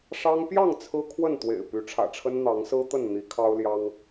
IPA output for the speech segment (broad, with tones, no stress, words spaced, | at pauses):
ʂɑ˦ŋ pjɑ˥˨ŋ t͡sʰɹ̩˦kʰwə˥˨nt̪wḛ˨˩ɪ̯ py˨˦ʈ͡ʂʰä̰˨˩ʈ͡ʂʰə˦n n̪ɑ˨˦ŋsɹ̩˦t̪ə˥˨n n̪i˨˦kʰɑ˦ʊ̯ljɑ˦ŋ